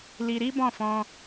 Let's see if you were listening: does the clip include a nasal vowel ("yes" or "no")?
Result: yes